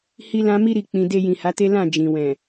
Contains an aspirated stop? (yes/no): no